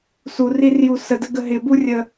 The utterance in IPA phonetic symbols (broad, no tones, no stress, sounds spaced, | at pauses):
s u r i r j u s ə d ə ɡ ə ɦ ɪ b u rʲ ə